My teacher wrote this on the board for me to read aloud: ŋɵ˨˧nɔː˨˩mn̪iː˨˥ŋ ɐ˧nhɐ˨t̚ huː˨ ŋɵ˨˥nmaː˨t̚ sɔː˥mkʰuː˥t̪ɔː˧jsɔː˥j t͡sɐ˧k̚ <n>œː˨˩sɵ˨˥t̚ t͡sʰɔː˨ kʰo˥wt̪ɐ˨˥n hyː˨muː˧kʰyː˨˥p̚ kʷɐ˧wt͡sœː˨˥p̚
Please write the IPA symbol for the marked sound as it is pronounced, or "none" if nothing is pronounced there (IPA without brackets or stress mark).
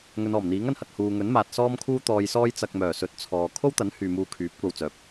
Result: m